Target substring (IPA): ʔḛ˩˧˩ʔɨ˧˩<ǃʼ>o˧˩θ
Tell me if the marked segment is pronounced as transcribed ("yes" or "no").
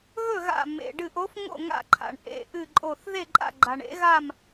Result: yes